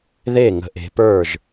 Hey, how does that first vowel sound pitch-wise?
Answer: falling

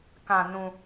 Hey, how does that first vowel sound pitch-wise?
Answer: low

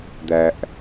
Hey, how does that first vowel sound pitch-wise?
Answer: low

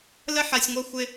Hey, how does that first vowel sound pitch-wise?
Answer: high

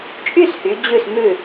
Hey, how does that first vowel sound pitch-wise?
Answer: falling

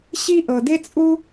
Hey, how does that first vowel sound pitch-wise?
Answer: high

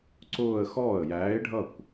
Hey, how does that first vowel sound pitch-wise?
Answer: falling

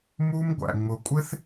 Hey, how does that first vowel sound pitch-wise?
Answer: high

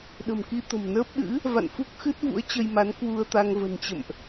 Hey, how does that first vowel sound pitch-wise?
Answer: low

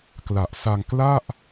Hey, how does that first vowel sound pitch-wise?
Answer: low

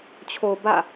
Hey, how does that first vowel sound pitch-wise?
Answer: low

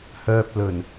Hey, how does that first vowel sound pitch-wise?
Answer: low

